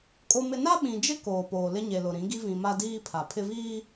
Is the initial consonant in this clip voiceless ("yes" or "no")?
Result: yes